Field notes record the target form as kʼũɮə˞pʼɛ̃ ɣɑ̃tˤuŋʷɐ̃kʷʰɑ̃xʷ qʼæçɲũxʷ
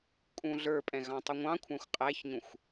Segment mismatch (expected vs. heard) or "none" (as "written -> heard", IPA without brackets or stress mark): ɐ̃ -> ɑ̃